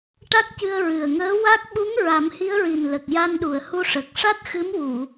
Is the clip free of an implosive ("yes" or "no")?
no